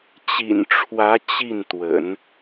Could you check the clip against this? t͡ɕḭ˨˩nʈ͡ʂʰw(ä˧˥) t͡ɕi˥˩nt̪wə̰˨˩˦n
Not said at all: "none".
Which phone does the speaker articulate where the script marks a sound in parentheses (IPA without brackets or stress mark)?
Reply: ä˧˥